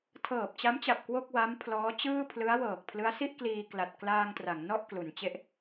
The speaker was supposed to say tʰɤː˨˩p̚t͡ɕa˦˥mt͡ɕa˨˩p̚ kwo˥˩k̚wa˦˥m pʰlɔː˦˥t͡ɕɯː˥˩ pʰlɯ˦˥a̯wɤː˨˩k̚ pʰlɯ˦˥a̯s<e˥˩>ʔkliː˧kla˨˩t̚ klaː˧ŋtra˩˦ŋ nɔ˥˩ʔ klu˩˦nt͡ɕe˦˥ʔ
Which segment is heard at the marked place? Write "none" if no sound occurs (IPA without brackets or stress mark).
i˥˩